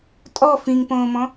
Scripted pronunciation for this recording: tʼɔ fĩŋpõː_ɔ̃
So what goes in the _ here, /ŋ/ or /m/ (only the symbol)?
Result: m